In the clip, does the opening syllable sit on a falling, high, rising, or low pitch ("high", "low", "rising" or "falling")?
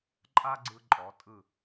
high